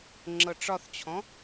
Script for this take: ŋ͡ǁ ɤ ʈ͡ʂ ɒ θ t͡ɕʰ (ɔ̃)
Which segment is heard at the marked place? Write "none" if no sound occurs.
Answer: ɔ̃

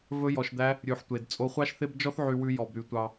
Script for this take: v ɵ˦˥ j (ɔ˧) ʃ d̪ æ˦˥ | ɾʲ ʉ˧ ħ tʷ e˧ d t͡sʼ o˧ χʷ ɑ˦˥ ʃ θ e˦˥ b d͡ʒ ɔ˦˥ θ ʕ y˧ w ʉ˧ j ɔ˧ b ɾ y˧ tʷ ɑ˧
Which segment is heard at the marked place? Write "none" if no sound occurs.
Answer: ɔ˧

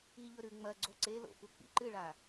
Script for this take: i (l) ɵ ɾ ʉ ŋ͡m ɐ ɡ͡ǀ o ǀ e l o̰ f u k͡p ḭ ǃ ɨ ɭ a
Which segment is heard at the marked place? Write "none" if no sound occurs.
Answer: ʎ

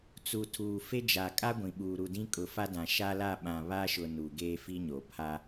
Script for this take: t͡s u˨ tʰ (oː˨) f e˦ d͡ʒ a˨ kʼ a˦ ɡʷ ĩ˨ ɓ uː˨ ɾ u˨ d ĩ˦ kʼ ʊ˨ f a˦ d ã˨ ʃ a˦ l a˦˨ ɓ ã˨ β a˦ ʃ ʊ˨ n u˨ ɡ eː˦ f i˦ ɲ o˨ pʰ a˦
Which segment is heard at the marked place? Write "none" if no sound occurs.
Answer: uː˨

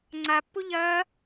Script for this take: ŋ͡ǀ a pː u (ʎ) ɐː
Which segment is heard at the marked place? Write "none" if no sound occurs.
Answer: ʎ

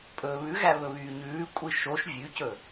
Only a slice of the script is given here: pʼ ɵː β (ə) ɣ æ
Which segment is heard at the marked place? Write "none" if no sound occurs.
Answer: ʉ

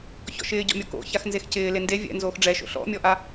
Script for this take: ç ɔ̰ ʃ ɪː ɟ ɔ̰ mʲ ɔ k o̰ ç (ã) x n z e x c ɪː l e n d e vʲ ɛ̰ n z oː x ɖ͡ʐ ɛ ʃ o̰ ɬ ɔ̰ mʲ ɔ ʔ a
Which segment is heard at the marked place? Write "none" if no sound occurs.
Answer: a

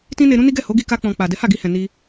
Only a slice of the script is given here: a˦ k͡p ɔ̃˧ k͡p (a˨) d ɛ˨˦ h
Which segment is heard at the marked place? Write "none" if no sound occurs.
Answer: a˨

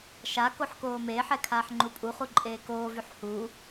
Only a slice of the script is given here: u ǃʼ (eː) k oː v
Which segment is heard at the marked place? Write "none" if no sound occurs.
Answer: eː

